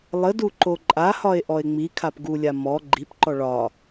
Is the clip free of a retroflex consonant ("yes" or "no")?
no